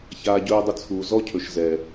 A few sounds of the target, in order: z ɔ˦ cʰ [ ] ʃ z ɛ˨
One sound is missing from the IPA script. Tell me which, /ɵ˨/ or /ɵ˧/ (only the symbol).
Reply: ɵ˨